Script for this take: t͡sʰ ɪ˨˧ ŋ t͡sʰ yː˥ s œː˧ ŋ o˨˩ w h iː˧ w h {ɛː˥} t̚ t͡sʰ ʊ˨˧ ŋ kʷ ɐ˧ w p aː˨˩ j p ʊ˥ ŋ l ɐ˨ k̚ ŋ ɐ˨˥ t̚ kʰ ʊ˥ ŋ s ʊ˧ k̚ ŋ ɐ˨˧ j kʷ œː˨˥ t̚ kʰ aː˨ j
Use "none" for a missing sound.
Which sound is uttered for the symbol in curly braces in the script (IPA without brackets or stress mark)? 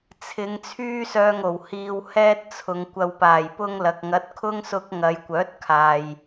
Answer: ɛː˥